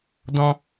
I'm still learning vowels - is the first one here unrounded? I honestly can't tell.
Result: no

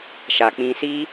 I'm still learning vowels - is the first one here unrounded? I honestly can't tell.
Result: yes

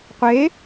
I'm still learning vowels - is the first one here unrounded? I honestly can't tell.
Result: yes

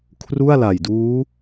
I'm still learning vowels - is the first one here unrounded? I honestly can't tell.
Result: no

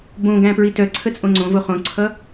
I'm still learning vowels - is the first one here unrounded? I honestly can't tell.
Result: no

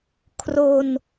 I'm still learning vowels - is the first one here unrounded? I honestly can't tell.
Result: no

